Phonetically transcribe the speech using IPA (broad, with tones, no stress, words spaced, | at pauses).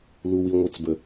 lu˨wi˨ŋʷɘ˨˦t͡sbə˨